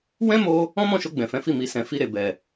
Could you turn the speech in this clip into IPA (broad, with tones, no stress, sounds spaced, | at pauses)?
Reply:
w ɛ̃˦ m o˧ | ɔ̃˦ m ɔ̃˦˨ ʃ o˧ ɡ͡b ɛ̃˨ f ɛ̃˨˦ f i˦˨ m i˨ s ɛ̃˨ f i˧ ɾ e˨ b ɛ˨